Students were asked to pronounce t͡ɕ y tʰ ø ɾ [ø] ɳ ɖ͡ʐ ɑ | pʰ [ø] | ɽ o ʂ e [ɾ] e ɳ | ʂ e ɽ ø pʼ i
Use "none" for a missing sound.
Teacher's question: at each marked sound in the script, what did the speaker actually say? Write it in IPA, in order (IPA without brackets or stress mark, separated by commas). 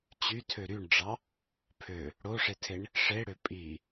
y, ø, tʰ